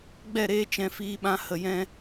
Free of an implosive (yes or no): no